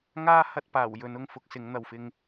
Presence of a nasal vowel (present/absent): absent